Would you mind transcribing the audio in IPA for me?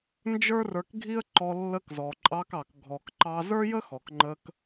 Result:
nd͡ʒə˞˦rə˞˧kɡʱi˦ə̯ ǃɔ˧ lːə˧kzɔ˨ǃʼɑ˧kɑ˨k ɡʱɔ˨kǃɑ˧ zə˞˦jə˦xɔ˨kŋ͡ǃə˧k

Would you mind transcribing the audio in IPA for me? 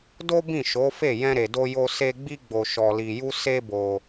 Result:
do˦bĩ˦˨ʃo˨˦fe˦˨ jɛ̃˧ɾe˨do˧jo˧ se˦ ɡ͡bi˦ɡ͡bo˧ ʃɔ˧li˧ju˦ se˦bo˧

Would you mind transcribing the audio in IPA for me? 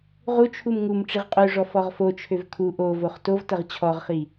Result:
ʁut͡ʃʰum ŋum ʈ͡ʂiʁqʼøʐɔ fɔʁfot͡ʃʰøv kʰu ʔovoχ tovtɐʁ t͡ɕʰɔʁχi

